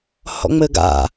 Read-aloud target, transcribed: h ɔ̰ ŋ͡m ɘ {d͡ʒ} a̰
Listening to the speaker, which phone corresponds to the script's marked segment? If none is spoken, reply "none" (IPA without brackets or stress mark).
ɡ